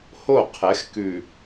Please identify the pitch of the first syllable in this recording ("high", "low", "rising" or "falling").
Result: falling